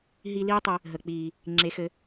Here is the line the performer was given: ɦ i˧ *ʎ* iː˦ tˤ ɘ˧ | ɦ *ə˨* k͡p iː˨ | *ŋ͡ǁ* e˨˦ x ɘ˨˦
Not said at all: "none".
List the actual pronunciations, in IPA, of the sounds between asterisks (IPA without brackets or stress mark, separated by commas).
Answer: l, ə˨, ŋ͡ǁ